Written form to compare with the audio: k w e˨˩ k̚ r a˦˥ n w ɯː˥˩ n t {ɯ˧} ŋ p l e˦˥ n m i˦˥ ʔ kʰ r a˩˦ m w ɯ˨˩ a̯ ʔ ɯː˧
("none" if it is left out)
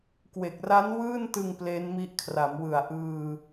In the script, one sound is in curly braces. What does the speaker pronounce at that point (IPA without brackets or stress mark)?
ɯ˧